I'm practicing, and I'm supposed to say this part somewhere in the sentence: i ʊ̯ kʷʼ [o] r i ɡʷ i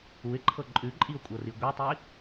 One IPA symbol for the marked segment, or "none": ɤ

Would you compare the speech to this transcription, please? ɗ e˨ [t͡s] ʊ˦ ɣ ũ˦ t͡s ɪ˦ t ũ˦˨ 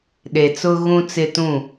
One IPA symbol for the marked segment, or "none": t͡s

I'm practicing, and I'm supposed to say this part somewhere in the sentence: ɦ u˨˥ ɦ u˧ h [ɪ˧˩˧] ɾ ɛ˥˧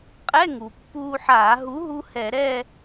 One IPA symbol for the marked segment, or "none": ɛ˧˩˧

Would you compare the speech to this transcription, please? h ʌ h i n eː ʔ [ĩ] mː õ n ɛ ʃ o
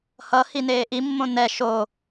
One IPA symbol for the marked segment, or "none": i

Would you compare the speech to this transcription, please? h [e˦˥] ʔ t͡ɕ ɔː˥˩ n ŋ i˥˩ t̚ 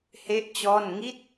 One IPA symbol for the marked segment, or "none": e˥˩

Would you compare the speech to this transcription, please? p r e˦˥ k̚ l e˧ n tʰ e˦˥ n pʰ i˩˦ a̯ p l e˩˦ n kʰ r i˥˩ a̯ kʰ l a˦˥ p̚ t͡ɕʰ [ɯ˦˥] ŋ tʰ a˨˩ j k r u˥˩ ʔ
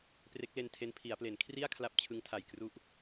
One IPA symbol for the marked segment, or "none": ɯ˦˥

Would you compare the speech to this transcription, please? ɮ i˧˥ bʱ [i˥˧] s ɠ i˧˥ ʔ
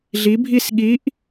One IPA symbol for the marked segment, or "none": i˥˧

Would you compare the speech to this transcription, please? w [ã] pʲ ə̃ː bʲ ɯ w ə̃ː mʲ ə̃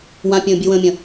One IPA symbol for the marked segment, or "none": ã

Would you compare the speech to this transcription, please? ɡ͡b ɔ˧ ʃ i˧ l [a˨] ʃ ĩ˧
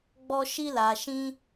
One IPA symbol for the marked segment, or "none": a˨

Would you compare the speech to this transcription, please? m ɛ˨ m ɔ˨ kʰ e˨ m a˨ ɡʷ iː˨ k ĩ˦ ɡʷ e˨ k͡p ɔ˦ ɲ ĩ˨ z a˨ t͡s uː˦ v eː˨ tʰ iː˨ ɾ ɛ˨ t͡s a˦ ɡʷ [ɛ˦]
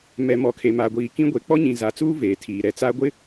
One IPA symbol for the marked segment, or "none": ɪ˦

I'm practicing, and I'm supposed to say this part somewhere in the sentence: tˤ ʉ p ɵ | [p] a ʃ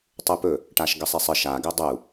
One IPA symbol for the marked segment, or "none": ʈ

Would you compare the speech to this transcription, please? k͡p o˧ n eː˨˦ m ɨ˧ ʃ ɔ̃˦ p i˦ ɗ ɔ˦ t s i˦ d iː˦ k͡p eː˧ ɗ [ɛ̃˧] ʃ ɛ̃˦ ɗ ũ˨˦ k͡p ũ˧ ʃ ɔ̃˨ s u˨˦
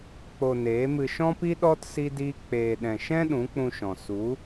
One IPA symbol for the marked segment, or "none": ɛ̃˧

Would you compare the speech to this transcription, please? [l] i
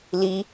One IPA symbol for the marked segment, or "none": l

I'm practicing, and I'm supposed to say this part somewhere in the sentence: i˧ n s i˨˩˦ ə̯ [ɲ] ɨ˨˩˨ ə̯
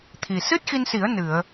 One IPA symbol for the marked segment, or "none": n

